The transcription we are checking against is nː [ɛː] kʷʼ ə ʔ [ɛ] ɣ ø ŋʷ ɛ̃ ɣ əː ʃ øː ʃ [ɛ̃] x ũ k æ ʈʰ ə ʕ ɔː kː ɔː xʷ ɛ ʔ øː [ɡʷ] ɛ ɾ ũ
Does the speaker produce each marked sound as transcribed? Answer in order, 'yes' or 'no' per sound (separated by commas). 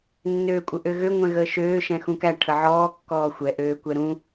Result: no, no, yes, no